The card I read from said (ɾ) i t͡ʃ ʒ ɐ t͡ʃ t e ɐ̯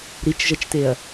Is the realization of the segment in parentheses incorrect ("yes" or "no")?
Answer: no